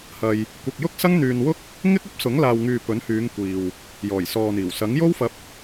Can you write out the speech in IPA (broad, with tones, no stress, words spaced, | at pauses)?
hɐ˧j | kʷɐ˧k̚ jʊ˥k̚sɐ˥ŋn̪yː˧nwʊ˥k̚ | ŋɪ˥k̚ ɐ˥p̚sʊ˨˥ŋlaː˨wŋyː˨ pɵ˨˥nhyː˨˧ŋ kʷiː˨w | jɔː˨˩jsɔː˨n̪iː˨˩w sɐ˨˥ŋjo˥wfɐ˧p̚